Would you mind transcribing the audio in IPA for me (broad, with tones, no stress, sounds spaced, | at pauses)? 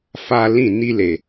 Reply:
f a˦ l ĩ˦˨ n i˦ l e˨